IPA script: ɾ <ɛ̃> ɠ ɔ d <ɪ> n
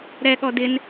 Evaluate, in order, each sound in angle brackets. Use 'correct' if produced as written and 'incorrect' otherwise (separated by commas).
incorrect, correct